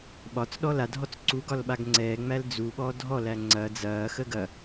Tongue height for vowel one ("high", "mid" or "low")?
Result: low